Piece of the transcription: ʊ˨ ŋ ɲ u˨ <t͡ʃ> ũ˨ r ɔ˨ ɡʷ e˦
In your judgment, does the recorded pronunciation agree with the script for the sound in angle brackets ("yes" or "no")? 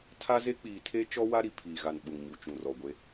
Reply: yes